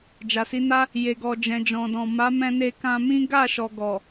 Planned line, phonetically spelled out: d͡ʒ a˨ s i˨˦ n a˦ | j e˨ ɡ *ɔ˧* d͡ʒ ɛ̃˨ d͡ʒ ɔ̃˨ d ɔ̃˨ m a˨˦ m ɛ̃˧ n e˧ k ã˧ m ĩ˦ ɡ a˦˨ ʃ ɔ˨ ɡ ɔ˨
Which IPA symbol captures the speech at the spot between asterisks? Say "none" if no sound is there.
ɔ˨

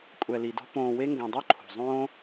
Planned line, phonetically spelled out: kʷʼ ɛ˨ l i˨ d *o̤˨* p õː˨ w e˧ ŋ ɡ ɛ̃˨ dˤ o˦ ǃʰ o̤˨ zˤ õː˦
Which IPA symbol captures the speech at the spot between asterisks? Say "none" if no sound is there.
o̤˧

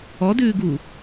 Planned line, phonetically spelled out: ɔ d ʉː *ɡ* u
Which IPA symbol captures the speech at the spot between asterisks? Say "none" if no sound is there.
ɡ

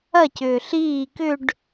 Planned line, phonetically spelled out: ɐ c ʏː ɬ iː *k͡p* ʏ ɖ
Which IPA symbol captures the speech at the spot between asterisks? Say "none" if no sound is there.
k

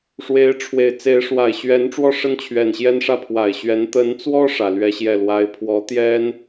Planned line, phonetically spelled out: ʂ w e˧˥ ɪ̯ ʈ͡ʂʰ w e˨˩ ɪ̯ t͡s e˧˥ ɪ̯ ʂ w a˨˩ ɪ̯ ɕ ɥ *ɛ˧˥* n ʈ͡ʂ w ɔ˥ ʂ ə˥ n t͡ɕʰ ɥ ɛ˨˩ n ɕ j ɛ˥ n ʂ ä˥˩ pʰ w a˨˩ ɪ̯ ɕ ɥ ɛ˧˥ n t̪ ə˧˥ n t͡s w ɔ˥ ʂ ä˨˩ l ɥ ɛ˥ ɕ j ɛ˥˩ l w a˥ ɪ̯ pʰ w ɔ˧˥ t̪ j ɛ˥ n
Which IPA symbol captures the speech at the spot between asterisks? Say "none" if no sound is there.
ɛ˧˥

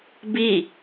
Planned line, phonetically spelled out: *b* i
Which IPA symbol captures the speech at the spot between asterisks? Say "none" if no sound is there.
b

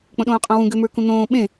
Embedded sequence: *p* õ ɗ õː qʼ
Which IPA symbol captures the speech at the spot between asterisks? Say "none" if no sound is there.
k͡p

